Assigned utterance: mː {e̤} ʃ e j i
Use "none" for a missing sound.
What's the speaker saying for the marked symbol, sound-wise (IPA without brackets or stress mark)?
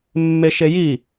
e